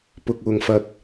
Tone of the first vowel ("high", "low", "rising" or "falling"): low